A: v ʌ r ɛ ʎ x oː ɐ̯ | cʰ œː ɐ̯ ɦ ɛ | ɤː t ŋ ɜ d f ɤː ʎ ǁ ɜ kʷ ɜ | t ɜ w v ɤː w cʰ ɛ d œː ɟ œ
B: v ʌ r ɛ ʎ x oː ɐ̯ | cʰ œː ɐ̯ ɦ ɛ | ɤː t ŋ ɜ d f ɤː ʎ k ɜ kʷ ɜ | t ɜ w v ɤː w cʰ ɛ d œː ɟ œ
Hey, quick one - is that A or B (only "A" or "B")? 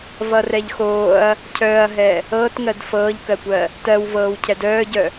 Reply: B